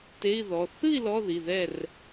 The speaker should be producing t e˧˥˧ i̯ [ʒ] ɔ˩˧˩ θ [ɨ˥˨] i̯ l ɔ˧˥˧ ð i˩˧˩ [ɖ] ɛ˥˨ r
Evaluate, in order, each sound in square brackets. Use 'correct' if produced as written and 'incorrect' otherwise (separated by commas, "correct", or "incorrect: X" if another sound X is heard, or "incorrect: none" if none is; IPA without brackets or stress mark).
incorrect: ð, correct, incorrect: ð